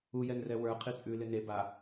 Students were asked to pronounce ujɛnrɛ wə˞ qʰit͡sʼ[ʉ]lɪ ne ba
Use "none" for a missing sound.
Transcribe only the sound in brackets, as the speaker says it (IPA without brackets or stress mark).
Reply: ʉ